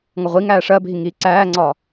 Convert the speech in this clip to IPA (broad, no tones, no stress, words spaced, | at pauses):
ŋʌʁʷiŋæː ʂɜbʱi ŋiːǀæːŋ͡ǀɒ